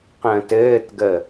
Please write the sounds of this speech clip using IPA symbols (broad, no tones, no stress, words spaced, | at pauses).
qə̃ːtɘːtɡə